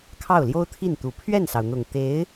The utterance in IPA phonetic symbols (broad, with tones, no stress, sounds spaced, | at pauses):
kʰ ɑ˥˩ ʊ̯ l j o˥ ʊ̯ t̪ʰ i˥˩ n t̪ u˨˩ pʰ ɥ ɛ˥˩ n s ɑ˩ ʊ̯ n̪ ʊ˨˩ ŋ t̪ e˧˥ ɪ̯